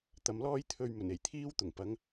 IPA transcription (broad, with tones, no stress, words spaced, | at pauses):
t̪ɐ˨˧mlɔː˥j t̪ʰɵ˧ɥmɵ˨˩n e˨˩jt̪ʰiː˥wt̪ʊ˨˩ŋ pɐ˨˥ŋ